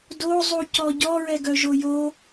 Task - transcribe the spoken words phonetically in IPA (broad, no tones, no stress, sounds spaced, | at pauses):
d o zˤ u c ɔ ɟ ɔ ɹ ɛ ɡ œ ʒ o j o